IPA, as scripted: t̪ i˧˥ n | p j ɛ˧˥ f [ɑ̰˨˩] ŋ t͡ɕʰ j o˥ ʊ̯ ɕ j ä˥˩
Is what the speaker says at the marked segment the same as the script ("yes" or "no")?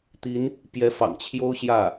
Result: yes